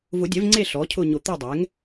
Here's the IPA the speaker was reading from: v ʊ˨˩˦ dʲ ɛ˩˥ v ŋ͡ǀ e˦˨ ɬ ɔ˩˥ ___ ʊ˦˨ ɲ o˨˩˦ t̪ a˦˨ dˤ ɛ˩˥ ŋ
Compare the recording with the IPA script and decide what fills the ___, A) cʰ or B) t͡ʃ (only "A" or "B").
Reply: A